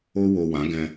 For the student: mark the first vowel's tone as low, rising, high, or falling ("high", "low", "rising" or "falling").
high